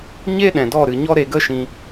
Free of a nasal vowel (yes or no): no